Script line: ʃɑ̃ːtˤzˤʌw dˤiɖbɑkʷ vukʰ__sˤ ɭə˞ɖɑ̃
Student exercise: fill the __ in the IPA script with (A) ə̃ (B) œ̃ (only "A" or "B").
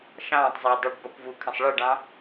A